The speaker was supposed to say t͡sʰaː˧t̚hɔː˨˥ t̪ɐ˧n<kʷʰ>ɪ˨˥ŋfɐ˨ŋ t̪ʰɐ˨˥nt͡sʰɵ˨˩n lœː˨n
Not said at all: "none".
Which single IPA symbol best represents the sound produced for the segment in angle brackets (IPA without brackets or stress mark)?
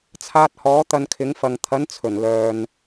kʰ